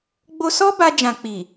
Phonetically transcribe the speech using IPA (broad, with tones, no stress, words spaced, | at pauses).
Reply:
ɡ͡bo˧sɔ˦ ba˧d͡ʒã˨ k͡pi˨